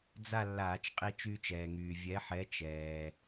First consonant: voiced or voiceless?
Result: voiced